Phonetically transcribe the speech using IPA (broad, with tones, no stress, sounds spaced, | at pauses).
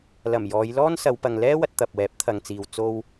l ɐ˨˩ m j ɔː˨˧ j l ɔː˥ n s ɐ˨˧ w p ɐ˨ ŋ l ɛː˥ w ɐ˧ t̚ t̪ ɐ˨ p̚ w ɛː˨˥ p̚ t̪ʰ ɐ˨ ŋ t͡s iː˨ w t͡s o˧ w